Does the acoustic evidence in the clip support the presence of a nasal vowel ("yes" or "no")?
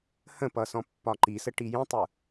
yes